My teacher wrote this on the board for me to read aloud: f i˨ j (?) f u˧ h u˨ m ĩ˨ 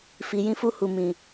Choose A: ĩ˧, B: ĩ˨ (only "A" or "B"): A